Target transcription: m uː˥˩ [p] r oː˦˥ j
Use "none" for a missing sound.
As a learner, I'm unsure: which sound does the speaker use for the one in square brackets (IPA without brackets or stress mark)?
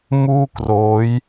k